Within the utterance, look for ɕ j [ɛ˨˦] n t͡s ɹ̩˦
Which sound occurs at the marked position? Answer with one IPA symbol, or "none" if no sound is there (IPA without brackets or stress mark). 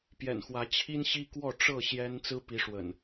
ɛ˦